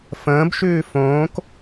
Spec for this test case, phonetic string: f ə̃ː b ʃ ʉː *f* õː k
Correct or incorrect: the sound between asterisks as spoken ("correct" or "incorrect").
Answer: correct